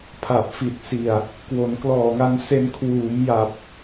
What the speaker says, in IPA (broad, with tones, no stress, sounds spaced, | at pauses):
pʰ a˨˩ p̚ f i˨˩ t̚ s i˨˩ a̯ | k w o˩˦ n k l ɔː˨˩ ŋ a˧ n s e˧ n kʰ w uː˩˦ m j a˨˩ p̚